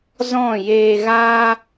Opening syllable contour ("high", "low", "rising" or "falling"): falling